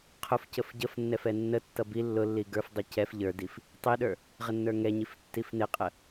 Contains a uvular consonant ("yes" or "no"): yes